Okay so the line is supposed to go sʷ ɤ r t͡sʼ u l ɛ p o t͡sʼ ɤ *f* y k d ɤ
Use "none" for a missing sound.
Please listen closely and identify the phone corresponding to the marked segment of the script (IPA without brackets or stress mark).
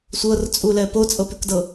p